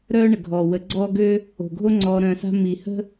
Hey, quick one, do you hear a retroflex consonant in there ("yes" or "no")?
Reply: yes